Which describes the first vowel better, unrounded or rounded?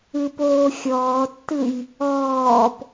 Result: unrounded